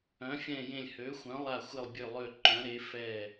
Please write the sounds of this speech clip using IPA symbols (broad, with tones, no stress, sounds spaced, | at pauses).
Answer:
œ̃˨˥ fʲ ɛ̃˦˨ j ẽ˦˨ lʲ h ø˨˥ xʷ œ̃˨˥ lˠ a˦˨ xʷ ɪ˦˨ lˠ bʲ ø˦˨ lˠ ø˦˨ ǃ œ̃˨˥ ɾ e˨˥ f ɛ˦˨